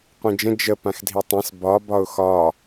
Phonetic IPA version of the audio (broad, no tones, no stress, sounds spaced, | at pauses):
qʷ ĩ d͡ʒ ə̃ d͡ʒ ə p ã x dʱ i tˤ ɛ̃ s b ɒ b ɒ ʊ̯ x ɒ